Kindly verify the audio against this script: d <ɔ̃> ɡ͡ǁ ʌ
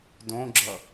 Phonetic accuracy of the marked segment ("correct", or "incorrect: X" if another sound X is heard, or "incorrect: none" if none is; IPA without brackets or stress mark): incorrect: õ